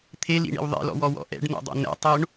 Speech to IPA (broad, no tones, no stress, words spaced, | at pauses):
t̪ʰelḭɳḭw ðˤḭlɔ̰wɔwɔ̰ ʔɛ̰ɖno̰dˤo̰ nɛ̰tˤoɳ